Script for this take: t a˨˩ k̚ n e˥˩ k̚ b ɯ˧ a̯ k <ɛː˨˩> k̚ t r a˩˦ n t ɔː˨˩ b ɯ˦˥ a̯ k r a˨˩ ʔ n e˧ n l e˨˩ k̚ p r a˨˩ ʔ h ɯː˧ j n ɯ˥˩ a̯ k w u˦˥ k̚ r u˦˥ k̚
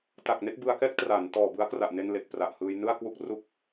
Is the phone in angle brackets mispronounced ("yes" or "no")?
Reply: yes